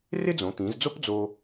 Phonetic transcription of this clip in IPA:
r ɪ˥ d͡z õ˩˧ t̪ ĩ˩˧ z d͡z o˥ p d͡z o˧

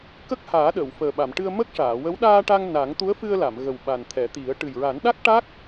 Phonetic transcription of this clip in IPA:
k ə˦˥ k̚ h aː˨˩˦ ɗ əː˨˩˨ w f əː˨˩ ɓ a˨˩˨ m ʈ ɨ˧ ə̯ m ə˦˥ k̚ ʂ aː˨˩˨ w ə˧˥ w ɗ aː˧ ʈ a˧ ŋ n a˨˩˦ ŋ t̪ u˧˥ ə̯ f ɨ˧ ə̯ l a˨˩˨ m ɣ ə˨˩ w ɓ a˨˩ n t̪ʰ ɛ˨˩˦ t̪ i˨˩˦ ə̯ ʈ ɨ˨˩ j ɹ a˨˩˦ n ɗ a˦˥ k̚ ʈ a˦˥ k̚

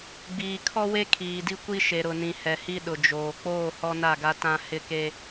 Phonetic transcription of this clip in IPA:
ɡ͡b iː˨ kʰ ɔ˦ w e˦ kʰ iː˨ d i˦ kʷ i˦ ʃ e˨ ɾ ʊ˨ n ĩ˨ h ɛ˨ h i˦ ɗ ʊ˨ d͡ʒ oː˨ k͡p oː˦˨ h ɔ˦ n a˦˨ ɡ a˦ t ã˦ h ɪ˦ k e˦

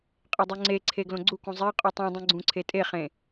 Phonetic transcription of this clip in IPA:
qʼ e dˤ u ŋ͡ǀ e ǀʰ e ɡ l õ ɡ͡ǀ u k ũ zˤ e qʼ u tˤ ũ dˤ ũ ɡ͡ǀ ũ ǀʰ e tʼ e χ ẽ

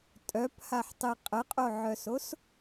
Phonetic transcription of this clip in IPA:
tʼ œ p h a ħ tˤ i qʼ ə qʼ o ʕ œ s o s

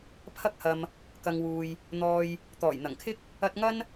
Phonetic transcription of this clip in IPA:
pʰ ɐ˧ k̚ h ɐ˨ m | k ɐ˨ ŋ w uː˨ j | n̪ ɔː˨ j | t̪ ɔː˨˩ j n̪ ɐ˨˩ ŋ kʰ ɪ˥ k̚ | ɐ˧ t̚ ŋ ɐ˥ n

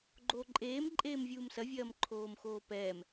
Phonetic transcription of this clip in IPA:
ɡ͡ǃ oː ǃʼ eː m ǃʼ eː m vʲ uː m s ɐ vʲ ɐː m ǃʰ oː m x oː p ɛː m

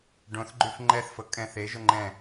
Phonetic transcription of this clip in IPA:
ɖ õ θ ɡ͡ǃ y f ŋ͡ǃ ɛ θ f ɤ kʼ ɛ̃ θ e ʒ ʊ ŋ͡ǃ ɛ̃

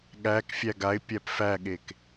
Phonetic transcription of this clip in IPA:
ɠ æ k fʲ æ ɡ a ɪ̯ pʲ æ p f æ ɠ e k

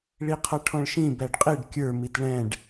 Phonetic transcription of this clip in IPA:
ɭ i qʰ ʌ ʈʰ ɔ̃ ɭ ʃ ĩ b æ ɖ qʼ i ɖ kʲ ə˞ m i t ɭ ɛ̃ ɖ

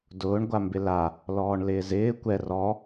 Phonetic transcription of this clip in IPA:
d ʊː ɳ ɡʷ a m b ɪ l a | l ɔː ɳ l ɪː z ɪː kʷ ɛ r ɔ

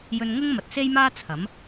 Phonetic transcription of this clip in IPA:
j ɵ˧ n ŋ ʊ˥ ŋ m ɐ˨ t̚ s e˥ j m aː˥ t͡sʰ ɐ˨˥ m

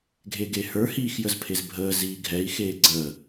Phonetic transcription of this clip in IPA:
ɡʱ e ɡ e h ə˞ h iː x j ə z pʰ e z bʱ əː z iː ɡʱ ɛ i̯ x eː ɡ͡ǀ əː

